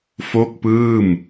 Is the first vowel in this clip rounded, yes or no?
yes